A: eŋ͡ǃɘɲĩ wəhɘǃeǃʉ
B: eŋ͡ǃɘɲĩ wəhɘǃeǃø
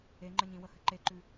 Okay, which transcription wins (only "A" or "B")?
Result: A